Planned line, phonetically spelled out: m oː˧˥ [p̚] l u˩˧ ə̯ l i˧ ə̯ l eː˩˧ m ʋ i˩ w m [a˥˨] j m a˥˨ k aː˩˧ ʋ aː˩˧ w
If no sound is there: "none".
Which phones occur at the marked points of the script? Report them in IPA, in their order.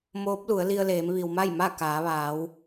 p̚, a˥˨

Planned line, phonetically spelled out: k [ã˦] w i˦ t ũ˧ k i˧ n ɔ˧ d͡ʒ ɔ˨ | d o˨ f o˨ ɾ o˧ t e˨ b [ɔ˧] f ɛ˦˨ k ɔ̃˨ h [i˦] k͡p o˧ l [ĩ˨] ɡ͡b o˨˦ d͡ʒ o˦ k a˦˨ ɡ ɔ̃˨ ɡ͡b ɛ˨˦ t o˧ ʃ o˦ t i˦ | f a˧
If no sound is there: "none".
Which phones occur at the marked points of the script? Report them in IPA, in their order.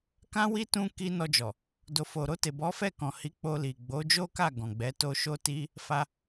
ã˦, ɔ˨˦, i˨˦, i˨

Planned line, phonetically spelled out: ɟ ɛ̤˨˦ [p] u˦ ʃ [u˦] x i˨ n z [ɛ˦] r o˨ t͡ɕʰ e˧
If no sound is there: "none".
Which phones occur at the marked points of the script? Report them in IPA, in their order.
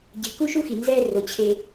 k, u˦, ɛ˦

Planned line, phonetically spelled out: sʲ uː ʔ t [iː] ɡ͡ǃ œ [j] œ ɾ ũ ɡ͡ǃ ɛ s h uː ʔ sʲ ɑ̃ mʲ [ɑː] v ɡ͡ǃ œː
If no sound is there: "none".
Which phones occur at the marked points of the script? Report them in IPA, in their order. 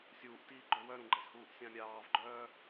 iː, w, ɑː

